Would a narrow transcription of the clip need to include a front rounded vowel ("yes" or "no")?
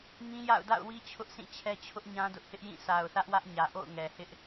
no